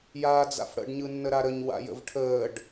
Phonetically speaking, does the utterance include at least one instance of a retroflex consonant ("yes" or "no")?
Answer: yes